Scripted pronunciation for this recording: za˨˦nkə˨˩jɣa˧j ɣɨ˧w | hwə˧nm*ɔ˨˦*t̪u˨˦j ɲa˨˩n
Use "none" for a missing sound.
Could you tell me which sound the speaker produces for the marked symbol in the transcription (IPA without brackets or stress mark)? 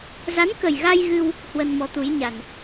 ɔ˨˦